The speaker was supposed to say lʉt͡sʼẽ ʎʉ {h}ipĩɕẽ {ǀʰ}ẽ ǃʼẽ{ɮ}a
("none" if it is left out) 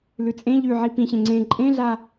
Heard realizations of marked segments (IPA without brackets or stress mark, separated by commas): ʕ, ŋ͡ǀ, ɮ